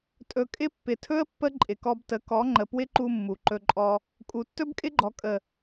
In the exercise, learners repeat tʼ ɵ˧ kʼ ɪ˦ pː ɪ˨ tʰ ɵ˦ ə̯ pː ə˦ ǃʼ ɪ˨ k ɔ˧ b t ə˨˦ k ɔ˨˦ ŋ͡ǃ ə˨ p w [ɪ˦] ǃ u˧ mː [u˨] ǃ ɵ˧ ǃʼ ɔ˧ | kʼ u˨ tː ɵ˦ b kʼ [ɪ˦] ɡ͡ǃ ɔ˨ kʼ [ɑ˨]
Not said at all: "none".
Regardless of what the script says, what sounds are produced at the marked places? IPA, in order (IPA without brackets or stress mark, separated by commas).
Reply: ɪ˦, u˨, ɪ˦, ə˨